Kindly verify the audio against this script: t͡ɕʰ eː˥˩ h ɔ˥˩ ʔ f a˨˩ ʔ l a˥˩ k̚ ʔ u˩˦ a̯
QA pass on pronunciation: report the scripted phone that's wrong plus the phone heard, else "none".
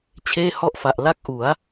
none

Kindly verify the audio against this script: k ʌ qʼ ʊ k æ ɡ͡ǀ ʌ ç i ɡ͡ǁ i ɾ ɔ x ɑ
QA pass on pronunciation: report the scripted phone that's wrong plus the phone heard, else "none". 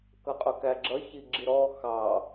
ɡ͡ǀ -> ɡ͡ǁ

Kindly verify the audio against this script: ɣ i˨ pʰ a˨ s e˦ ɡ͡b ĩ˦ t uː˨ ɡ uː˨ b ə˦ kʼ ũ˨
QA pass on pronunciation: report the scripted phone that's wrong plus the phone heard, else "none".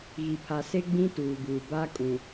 ə˦ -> a˦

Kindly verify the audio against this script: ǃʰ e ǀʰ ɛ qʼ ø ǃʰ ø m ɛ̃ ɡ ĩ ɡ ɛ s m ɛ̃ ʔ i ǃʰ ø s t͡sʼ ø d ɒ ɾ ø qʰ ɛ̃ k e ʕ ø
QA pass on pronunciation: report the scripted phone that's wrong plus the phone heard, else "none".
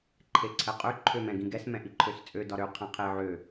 k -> qʰ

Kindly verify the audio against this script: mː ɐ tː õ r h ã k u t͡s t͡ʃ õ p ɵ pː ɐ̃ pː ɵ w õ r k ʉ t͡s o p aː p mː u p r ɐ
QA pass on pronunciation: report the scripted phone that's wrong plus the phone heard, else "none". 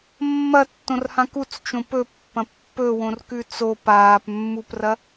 none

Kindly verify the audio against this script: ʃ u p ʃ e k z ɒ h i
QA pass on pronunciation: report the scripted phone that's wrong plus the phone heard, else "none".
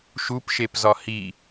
k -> p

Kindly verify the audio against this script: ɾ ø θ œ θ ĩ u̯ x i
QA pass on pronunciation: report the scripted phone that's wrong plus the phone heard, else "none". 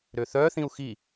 none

